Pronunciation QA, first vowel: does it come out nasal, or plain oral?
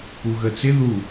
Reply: oral